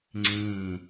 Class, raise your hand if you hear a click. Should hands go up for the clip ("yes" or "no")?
yes